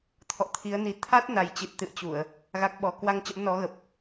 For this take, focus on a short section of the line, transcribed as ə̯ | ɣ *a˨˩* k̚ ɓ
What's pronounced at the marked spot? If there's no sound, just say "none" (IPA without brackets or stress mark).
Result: a˦˥